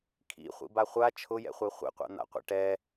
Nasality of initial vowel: oral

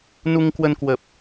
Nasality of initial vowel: oral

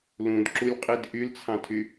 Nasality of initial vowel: nasal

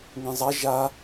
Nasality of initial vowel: nasal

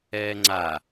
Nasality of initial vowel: oral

